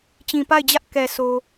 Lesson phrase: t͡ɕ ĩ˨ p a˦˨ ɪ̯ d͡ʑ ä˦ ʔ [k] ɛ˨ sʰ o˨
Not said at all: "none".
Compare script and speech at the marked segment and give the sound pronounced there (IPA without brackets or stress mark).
k